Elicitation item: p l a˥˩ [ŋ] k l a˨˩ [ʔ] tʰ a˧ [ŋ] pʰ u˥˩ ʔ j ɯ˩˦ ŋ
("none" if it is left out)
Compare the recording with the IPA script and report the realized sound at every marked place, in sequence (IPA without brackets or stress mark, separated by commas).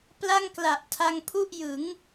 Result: ŋ, ʔ, ŋ